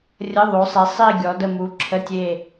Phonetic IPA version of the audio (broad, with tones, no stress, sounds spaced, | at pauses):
rʲ ə˧˥˧ ðˤ o˨˦ sˤ e˨˦ sˤ i˦˨ ɡʲ ɔ˨˦ d ə˦˨ m u˨˦ ǁʰ ə˧˥˧ tʲ e˦˨